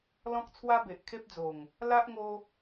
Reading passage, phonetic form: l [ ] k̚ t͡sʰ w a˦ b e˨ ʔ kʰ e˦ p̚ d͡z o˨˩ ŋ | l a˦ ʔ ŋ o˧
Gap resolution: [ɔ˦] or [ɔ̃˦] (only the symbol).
ɔ̃˦